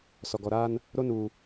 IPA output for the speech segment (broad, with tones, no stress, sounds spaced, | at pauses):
s ɔ˨ ɡ ɔ˨ ɾ aː˦ n | ɾ o˦ n uː˨